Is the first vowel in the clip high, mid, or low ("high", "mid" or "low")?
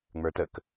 mid